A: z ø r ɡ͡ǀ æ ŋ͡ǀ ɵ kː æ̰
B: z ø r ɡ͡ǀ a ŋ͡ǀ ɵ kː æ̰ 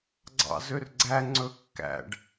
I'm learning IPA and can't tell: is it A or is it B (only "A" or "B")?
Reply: A